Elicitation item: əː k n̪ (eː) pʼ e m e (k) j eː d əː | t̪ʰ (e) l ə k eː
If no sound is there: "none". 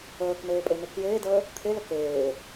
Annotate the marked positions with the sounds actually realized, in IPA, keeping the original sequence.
eː, k, e

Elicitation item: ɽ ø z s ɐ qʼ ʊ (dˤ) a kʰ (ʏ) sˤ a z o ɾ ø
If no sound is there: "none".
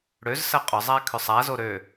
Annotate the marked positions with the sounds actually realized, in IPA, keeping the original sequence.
zˤ, ʏ

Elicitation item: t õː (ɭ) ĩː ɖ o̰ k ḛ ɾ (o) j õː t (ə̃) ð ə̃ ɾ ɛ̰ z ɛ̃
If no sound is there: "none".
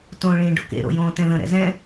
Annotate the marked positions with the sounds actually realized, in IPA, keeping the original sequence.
ɭ, o̰, ɛ̃

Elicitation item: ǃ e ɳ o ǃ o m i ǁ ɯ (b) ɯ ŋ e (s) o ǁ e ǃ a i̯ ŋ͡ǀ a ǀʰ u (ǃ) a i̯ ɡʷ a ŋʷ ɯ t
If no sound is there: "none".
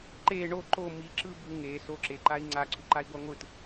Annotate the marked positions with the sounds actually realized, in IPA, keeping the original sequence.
b, s, ǃ

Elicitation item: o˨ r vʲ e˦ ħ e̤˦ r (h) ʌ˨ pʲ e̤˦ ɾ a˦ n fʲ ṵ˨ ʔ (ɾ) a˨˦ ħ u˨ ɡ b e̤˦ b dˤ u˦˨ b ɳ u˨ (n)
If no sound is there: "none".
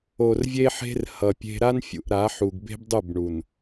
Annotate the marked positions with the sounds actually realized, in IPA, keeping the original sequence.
h, ɾ, n

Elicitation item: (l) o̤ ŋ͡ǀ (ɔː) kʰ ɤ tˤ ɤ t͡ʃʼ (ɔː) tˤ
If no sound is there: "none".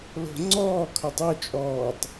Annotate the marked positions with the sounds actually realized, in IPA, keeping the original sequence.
l, ɔː, ɔː

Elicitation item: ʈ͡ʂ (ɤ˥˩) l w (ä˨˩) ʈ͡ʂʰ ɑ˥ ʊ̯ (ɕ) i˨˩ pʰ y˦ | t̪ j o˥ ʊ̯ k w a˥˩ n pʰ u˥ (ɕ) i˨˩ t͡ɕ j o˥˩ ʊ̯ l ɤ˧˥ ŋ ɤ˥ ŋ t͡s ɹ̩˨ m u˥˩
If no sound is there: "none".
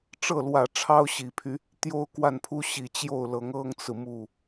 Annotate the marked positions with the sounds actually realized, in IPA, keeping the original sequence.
ɤ˥˩, ä˨˩, ɕ, ɕ

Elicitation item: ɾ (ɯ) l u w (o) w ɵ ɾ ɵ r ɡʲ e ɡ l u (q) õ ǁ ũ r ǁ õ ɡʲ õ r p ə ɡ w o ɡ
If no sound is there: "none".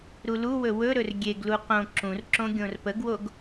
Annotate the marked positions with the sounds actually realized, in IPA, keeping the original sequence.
u, ɵ, q

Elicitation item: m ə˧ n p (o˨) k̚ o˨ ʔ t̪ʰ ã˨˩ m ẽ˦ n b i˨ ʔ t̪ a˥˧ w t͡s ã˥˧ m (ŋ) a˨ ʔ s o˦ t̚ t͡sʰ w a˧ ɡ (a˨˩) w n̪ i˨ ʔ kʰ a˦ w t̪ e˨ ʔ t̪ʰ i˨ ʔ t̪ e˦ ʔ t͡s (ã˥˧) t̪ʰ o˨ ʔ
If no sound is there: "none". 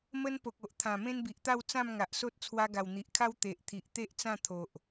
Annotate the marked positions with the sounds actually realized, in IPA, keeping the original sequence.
o˨, ŋ, a˨˩, ã˥˧

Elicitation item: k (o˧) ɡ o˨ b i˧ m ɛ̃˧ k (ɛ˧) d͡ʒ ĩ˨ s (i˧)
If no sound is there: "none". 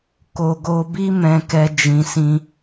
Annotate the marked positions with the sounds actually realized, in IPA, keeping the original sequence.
o˨, ɛ˧, ĩ˧

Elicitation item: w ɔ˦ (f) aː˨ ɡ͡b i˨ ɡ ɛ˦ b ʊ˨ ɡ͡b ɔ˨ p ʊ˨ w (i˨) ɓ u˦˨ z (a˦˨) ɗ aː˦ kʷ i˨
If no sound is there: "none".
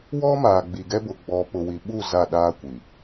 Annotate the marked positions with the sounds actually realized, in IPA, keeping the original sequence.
m, i˨, a˦˨

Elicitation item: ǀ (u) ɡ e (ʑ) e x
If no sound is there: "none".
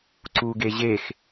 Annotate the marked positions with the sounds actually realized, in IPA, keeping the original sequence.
u, ʑ

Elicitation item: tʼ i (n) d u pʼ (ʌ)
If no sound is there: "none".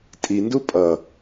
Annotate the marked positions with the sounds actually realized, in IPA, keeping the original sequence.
n, ʌ

